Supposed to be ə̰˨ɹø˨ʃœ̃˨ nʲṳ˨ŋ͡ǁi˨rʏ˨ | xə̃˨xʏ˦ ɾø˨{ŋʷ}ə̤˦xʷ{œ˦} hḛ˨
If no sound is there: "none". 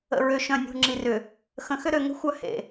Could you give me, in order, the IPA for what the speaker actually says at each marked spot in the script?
ŋ, œ˦

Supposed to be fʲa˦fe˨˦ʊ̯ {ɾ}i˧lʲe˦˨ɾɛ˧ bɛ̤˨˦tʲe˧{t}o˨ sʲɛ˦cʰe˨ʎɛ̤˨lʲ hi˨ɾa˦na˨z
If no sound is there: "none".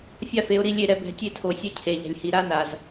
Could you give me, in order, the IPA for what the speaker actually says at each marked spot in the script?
ɾ, tʰ

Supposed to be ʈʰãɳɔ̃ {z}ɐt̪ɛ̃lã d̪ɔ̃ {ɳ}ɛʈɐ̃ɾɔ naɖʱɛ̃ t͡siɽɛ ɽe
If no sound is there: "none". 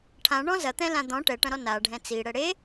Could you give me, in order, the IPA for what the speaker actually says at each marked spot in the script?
z, ʈ

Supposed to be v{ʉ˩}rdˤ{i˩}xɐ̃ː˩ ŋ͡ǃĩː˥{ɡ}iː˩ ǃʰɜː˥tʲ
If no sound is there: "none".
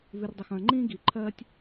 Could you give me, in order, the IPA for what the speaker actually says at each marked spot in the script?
ʉ˩, i˩, ɡ

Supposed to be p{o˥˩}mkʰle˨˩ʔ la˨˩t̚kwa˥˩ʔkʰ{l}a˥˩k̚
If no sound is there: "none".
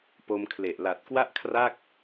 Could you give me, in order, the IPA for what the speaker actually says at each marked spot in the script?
o˧, r

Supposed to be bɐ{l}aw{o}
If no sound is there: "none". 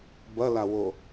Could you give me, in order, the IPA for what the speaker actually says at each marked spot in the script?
l, o

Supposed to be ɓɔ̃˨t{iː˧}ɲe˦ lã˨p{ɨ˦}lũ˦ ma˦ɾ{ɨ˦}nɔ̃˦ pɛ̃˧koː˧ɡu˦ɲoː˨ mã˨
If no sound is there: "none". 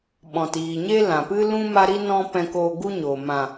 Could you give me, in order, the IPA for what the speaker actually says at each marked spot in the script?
iː˨, ɨ˦, i˦

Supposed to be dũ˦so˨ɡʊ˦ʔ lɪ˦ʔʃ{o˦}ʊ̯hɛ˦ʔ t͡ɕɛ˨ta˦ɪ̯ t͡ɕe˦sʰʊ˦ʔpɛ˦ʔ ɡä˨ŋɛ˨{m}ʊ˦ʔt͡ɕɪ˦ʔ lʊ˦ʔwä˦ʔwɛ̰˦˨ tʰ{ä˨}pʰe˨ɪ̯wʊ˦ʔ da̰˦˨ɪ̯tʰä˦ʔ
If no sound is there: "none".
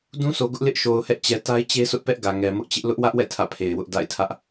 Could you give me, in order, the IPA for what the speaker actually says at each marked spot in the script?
o˨, m, ä̰˦˨

